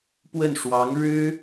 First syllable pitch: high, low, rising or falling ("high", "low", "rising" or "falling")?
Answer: falling